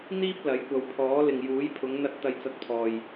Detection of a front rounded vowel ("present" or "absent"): absent